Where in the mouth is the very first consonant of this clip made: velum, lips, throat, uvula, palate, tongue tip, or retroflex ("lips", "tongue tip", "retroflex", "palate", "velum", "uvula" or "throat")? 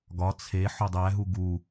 velum